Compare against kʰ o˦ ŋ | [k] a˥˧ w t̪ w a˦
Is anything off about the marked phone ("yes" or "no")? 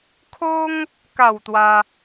no